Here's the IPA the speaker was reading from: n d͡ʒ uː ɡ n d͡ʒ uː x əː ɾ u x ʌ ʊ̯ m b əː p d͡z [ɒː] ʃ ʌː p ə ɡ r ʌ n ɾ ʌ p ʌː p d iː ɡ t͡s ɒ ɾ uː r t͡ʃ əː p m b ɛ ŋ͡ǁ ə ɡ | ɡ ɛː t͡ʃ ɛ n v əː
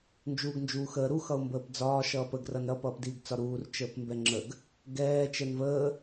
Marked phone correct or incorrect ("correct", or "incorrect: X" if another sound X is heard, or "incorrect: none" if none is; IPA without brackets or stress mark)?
correct